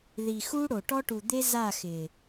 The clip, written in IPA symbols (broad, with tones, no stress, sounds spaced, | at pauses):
ð i˨ x uː˦ ɽ o˨ ʈ ɔ˦ ʈ u˨ d̪ e˦ z a˦˨ x ɪː˨